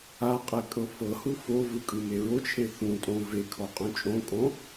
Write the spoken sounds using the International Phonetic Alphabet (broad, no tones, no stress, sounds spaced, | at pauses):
a qʼ ɛ kʼ ɤ f ɤ h u f o v ɯ kʼ ɯ m e ɹ o t͡ʃʰ e θ ũ tʼ õ v e kʰ ɔ qʼ ũ t͡ʃʼ õ kʼ õ